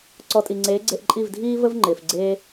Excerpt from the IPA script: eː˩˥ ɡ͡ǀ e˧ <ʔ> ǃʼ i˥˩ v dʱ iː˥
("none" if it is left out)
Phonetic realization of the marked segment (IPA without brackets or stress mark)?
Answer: ʔ